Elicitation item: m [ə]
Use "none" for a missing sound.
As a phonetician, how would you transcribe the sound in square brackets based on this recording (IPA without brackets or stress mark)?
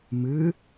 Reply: ɨ